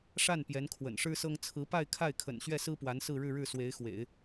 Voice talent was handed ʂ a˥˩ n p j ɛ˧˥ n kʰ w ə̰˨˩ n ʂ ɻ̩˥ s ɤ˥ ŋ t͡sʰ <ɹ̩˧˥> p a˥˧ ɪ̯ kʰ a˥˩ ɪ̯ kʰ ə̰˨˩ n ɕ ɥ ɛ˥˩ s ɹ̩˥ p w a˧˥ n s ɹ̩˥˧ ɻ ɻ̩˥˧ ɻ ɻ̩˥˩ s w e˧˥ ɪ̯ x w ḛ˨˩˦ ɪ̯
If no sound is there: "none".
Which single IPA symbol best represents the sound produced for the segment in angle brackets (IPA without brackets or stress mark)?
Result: ɹ̩˧˥